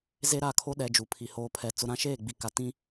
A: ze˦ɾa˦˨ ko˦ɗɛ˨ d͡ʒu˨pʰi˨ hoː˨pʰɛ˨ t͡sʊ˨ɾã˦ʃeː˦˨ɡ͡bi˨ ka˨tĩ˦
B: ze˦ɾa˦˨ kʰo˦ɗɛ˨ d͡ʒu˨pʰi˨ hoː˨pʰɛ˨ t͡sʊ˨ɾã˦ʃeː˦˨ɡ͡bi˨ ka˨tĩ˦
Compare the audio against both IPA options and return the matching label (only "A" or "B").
B